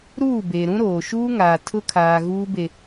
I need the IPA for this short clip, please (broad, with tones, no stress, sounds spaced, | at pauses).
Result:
ɾ uː˦˨ b e˨ ɾ ũ˦ ɾ oː˨ ʃ uː˦ ŋ aː˨ tʰ ʊ˦ kʰ aː˨ ɣ uː˦ b e˨